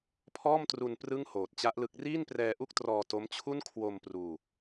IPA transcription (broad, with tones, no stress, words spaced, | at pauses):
pʰɔː˥˩mtru˧n prɯ˥˩ŋhoː˨˩t̚t͡ɕa˦˥ʔlɯ˦˥k̚ riː˥˩nprɛː˧ʔu˥˩k̚trɔː˧ to˦˥mt͡ɕʰu˥˩n kʰwo˧m pruː˧